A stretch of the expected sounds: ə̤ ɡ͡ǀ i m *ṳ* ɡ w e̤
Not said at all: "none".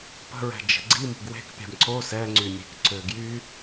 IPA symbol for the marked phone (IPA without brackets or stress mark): ṳ